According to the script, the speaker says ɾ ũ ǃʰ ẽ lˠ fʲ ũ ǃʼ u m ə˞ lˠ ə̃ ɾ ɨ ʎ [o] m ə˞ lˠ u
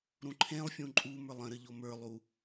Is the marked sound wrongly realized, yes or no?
no